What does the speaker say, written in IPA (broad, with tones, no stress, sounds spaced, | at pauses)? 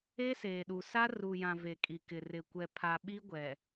e˦ s eː˨ ɗ u˨ s a˦ r u˨ j ã˨ v e˨ kʼ i˨ k ɪ˨ r ɪ˨ kʷ ɛ˨ pʰ a˨ ɓ i˦ ɡʷ ɛ˨